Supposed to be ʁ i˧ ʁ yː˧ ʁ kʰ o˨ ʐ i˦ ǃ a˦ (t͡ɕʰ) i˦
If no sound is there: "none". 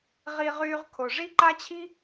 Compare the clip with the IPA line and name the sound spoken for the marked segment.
t͡ɕʰ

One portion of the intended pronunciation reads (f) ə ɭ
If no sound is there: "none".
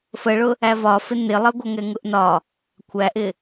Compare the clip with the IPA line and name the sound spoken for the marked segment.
f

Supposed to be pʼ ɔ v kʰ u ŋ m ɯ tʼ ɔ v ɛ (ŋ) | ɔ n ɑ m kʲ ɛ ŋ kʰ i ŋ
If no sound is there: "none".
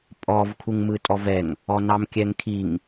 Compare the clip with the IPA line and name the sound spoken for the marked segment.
ŋ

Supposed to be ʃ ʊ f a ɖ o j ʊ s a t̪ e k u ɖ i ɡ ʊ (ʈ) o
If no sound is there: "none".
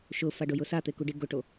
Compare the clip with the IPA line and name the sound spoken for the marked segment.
ʈ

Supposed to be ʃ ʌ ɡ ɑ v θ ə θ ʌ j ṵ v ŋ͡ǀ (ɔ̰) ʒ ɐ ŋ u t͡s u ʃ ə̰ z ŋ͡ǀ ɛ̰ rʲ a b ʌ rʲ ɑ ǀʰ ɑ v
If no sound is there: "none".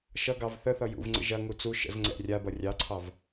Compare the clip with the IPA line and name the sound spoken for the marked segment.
ə̰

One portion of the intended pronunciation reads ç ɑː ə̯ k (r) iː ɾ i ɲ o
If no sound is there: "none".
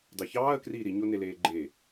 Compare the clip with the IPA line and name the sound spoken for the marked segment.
r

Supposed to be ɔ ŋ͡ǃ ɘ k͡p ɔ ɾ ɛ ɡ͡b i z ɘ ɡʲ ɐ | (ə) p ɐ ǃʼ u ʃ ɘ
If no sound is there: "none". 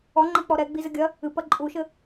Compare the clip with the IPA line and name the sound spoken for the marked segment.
ɨ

